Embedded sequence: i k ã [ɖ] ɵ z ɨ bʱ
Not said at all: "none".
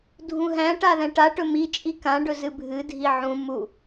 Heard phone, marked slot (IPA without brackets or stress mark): ɖ